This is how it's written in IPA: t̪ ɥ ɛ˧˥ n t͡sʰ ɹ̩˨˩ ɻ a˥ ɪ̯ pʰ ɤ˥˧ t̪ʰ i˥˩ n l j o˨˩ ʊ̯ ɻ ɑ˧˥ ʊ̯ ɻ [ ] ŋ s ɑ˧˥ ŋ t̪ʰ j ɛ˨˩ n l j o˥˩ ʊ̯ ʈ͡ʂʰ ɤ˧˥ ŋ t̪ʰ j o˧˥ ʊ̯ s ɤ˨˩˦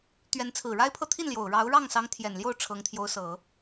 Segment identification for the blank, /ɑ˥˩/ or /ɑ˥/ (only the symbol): ɑ˥˩